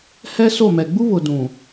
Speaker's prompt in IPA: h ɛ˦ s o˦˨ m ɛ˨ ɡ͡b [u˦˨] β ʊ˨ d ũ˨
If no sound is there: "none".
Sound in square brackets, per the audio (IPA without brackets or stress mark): u˦